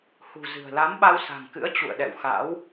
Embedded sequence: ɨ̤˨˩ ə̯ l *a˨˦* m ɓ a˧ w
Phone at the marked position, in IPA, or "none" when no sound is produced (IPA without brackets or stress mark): a˨˦